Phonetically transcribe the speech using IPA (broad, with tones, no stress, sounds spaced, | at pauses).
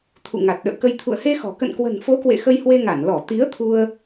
t̪ʰ ṵ˧˨ ŋ a˨˩ t̚ ɗ ə̰ː˧˨ k ə˧ j t̪ʰ ṵ˧˨ ə̯ h e˧ x ɔ̤˨˩ k ə̰˧˨ n k w ə̤˨˩ n f o˨˦ k w ḛ˧˨ x ə˧ j h w e˧ ŋ a˧˩ n l ɔ˧˩ t̪ i˨˦ ə̯ t̪ʰ u˧ ə̯